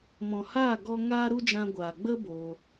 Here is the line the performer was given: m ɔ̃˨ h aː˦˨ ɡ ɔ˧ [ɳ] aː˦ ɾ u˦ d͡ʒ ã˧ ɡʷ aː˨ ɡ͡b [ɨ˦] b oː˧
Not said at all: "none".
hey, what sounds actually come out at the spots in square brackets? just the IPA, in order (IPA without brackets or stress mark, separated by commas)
ŋ, ə˦